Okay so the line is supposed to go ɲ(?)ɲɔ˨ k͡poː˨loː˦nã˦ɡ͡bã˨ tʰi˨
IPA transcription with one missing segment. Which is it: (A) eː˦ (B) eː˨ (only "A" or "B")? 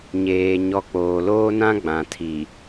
B